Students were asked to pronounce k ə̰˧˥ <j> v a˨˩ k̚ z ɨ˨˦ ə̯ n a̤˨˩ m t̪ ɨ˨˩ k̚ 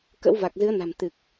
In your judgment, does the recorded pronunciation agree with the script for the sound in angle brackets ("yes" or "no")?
no